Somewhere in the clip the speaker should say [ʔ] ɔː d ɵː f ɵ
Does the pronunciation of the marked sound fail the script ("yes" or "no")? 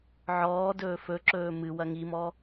yes